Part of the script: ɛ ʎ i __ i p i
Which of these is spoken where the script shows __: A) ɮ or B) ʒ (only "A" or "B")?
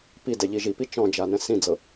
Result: B